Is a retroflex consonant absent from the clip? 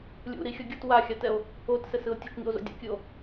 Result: yes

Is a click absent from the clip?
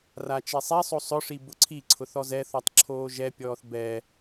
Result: no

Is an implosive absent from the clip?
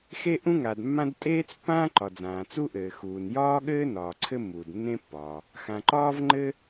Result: no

